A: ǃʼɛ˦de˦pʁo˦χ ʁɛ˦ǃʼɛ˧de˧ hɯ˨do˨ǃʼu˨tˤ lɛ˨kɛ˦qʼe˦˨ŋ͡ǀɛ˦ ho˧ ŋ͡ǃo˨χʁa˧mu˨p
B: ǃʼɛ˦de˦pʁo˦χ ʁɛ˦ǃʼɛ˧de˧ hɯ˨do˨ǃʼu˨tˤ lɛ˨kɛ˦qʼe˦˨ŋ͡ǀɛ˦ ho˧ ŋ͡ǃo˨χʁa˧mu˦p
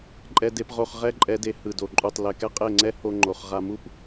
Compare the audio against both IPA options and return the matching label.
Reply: B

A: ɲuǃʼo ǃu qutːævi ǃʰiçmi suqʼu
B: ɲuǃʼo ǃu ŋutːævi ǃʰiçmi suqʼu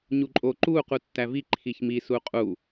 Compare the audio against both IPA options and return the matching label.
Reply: A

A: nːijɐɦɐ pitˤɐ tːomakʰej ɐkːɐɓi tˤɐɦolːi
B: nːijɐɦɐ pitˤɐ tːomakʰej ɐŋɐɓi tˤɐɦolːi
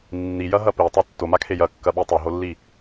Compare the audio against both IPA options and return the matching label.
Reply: A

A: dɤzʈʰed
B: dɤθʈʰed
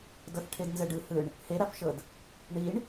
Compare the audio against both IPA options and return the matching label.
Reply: B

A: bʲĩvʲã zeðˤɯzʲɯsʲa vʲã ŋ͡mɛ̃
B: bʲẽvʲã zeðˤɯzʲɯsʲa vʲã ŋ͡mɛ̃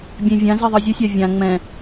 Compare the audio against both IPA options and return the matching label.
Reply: B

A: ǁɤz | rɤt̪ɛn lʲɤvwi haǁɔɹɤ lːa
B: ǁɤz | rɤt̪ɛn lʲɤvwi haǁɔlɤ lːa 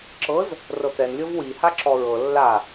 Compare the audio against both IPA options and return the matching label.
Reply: A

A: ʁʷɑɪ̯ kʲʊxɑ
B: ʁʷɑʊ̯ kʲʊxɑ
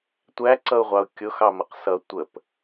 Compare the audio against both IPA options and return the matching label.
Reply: B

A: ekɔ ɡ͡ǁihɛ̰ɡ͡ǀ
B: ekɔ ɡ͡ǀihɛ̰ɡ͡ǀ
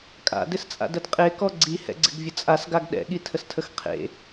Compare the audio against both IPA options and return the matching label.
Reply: B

